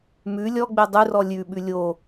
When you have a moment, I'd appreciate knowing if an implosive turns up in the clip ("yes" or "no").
yes